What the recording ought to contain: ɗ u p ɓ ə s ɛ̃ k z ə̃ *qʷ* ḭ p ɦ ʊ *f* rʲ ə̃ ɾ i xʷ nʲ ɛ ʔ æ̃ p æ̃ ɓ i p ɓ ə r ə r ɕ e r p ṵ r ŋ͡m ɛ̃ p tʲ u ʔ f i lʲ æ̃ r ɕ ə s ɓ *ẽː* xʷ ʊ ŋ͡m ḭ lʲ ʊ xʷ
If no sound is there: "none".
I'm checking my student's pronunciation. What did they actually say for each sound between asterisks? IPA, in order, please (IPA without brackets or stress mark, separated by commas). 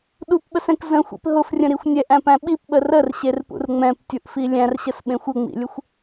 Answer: xʷ, f, ẽ